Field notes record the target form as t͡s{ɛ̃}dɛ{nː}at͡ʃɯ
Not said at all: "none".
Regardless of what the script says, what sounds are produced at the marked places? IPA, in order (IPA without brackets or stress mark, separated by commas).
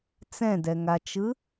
ɛ̃, ŋ